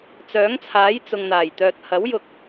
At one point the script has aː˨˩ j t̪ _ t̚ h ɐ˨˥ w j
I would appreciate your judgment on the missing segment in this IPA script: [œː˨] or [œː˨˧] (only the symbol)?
œː˨